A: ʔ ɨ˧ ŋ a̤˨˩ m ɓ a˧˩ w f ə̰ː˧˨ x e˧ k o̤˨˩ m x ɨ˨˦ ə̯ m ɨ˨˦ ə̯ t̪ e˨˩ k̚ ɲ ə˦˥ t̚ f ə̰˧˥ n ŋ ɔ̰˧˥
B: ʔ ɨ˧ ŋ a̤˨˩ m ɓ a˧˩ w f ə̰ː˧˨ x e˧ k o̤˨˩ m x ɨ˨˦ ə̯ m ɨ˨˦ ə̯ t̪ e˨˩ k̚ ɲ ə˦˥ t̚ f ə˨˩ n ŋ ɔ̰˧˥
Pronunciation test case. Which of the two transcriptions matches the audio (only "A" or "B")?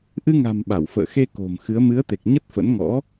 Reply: A